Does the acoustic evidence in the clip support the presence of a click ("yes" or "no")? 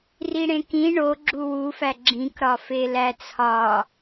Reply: yes